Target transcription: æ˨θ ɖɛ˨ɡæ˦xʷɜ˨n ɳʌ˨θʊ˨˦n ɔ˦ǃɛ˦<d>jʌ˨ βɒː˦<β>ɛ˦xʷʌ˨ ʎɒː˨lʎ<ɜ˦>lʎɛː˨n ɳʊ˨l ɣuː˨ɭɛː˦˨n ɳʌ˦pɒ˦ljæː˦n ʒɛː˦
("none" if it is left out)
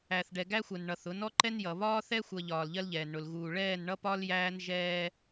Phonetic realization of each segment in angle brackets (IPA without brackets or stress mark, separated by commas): n, θ, ɜ˦